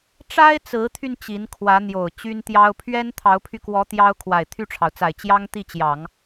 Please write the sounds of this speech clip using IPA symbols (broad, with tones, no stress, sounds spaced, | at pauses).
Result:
ʈ͡ʂ a˥ ɪ̯ t͡s ɹ̩˧˥ t̪ʰ y˧ n t͡ɕ i˧˥ n kʰ w ä˧˥ n̪ j o˨˩ ʊ̯ t͡ɕ y˥ n t̪ j ɑ˥ ʊ̯ pʰ ɥ ɛ˥ n t̪ʰ ɑ˧˥ ʊ̯ pʰ y˧ k w ɔ˧˥ t̪ j ɑ˥ ʊ̯ kʰ w a˨˩ ɪ̯ t̪ʰ y˥˩ ʈ͡ʂʰ ɑ˩ ʊ̯ t͡s a˨˩ ɪ̯ t͡ɕ j ɑ˥ ŋ t̪ i˥˩ t͡ɕ j ɑ˨˩˦ ŋ